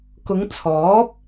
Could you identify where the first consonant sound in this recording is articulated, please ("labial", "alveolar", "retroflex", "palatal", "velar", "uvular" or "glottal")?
velar